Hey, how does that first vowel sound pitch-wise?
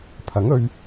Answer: rising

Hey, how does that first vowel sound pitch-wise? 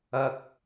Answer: high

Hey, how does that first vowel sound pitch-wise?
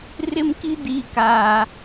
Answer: high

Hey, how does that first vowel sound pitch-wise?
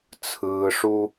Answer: low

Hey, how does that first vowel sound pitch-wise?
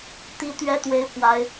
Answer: high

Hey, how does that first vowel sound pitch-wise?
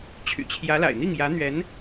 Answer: low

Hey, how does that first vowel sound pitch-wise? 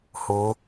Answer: rising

